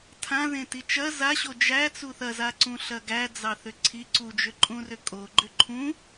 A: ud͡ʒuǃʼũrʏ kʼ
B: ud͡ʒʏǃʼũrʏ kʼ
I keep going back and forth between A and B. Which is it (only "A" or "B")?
B